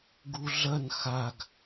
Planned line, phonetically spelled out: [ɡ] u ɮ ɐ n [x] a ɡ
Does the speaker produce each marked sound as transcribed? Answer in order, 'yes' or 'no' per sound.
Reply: yes, yes

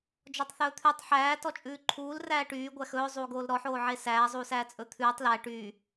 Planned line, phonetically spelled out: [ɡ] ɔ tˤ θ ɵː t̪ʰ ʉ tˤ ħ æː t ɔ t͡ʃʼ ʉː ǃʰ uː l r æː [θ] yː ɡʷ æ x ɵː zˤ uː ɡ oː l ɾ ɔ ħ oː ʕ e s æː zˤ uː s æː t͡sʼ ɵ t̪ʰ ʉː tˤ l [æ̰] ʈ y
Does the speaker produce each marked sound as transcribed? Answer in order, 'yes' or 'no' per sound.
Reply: no, no, no

